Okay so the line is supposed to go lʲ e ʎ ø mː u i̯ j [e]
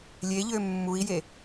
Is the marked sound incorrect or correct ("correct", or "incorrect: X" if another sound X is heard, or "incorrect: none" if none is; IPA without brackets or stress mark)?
correct